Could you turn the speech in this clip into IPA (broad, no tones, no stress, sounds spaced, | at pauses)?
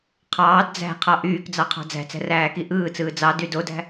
qʰ ɑː d d͡z æ̤ qʰ ɑ ʔ yː k d͡z ɑ qʰ ɑ̤ d͡z æ̤ t͡s æ̤ r æː k i ʔ ɯː t͡s ɯː d͡z ɑ d y d o d æ̤